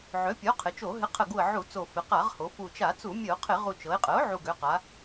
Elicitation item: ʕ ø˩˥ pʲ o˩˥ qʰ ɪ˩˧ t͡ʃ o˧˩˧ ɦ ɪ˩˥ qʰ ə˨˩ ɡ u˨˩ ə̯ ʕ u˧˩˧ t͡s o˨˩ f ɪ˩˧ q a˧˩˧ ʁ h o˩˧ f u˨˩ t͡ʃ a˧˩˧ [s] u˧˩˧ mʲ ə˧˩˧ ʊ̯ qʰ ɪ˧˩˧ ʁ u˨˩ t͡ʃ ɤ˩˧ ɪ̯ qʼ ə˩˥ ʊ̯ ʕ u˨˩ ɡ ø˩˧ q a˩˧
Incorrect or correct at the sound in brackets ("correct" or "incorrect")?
incorrect